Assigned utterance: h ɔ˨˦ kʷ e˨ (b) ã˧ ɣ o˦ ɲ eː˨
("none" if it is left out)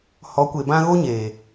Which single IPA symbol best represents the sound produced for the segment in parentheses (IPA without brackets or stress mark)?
b